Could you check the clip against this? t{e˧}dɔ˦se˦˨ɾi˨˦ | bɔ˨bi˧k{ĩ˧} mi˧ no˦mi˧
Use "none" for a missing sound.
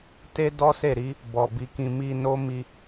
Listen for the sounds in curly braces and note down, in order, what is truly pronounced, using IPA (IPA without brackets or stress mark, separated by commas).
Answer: e˦, ĩ˧